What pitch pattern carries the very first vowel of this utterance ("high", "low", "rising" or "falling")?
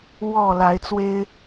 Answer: falling